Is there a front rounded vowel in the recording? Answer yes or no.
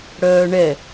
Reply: yes